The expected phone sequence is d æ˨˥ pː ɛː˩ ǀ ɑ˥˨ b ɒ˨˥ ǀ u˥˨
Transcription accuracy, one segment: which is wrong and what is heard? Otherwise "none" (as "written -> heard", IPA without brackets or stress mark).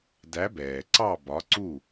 pː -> b